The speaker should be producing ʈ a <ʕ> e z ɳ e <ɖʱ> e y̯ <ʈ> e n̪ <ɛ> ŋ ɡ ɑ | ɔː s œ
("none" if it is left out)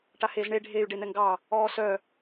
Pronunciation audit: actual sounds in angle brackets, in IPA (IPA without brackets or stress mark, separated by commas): h, ɖʱ, ɖ, ɛ